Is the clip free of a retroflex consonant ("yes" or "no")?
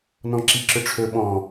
no